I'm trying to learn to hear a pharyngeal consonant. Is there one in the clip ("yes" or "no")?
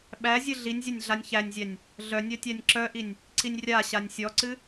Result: no